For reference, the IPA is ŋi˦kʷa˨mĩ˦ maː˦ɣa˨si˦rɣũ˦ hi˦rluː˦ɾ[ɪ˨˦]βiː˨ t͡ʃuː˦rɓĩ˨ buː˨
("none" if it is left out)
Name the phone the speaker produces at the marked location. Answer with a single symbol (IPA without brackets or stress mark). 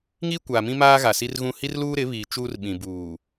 ɪ˨˦